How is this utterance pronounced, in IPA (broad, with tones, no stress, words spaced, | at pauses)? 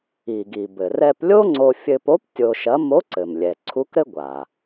i˩ɡi˩bɘ˩ rɛ˧plʲo˥ŋ͡ǀo˧ fʲɘ˧po˧˥p tʲo˧ʃɐ˧˥ mo˧˥ǀɘ˩m lʲɛ˩ǀʰu˧˥kɾɘ˥ ɡʷa˩